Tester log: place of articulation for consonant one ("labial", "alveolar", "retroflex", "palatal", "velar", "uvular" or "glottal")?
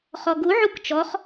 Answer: uvular